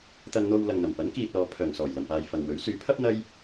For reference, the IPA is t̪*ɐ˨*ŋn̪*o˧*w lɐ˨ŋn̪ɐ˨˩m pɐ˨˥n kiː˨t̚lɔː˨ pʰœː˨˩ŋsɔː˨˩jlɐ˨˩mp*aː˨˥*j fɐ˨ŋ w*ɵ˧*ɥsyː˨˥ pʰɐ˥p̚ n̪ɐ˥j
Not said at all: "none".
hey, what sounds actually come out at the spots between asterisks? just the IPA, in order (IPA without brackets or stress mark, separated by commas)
ɐ˧, o˧, aː˨, ɵ˨˥